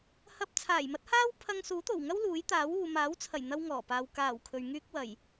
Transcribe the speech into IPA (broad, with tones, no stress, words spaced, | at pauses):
hɐ˧p̚ t͡sʰaː˨˩jmɐ˥t̚haː˥w pʰɐ˧ŋsuː˨˥t̪o˨˩wŋɐ˥w luː˨˥jt̪aː˨˥wuː˨ maː˨˥wt͡sʰɐ˨˩jn̪ɐ˧w ŋɔː˨˩paː˨w kaː˨˩w kʰɵ˨ɥŋyː˥k̚wɐ˨˩j